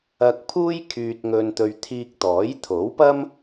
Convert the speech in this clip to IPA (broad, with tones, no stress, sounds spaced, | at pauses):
ɐ˧ k̚ pʰ uː˥ j kʰ yː˧ t̚ ŋ ɵ˧ n t̪ ɵ˧ ɥ t̪ʰ iː˧ k̚ t̪ ɔː˨˥ j t̪ʰ o˨˥ w p ɐ˥ m